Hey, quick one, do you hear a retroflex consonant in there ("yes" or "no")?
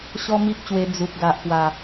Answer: no